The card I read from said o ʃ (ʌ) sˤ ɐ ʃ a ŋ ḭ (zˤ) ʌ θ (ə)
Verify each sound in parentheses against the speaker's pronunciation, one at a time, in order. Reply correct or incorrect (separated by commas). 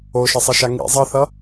correct, correct, incorrect